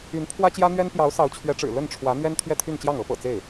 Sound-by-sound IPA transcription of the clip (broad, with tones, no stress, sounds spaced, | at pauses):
y˧˥ n pʰ w ä˥ t͡ɕ j ä˥ n̪ ɥ ɛ˥ n p j ɑ˧˥ ʊ̯ s ɑ˧˥ ʊ̯ t͡ɕʰ ɥ ɛ˧˥ ʈ͡ʂ ɻ̩˨˩ l ə˥˩ n ʈ͡ʂʰ w ä˧˥ n̪ ɥ ɛ˥ n t̪ʰ ɥ ɛ˥˧ t̪ʰ y˥˧ n t͡ɕ j ɑ˥˩ ŋ ɤ˧˥ p ɤ̰˨˩ t͡s e˥˩ ɪ̯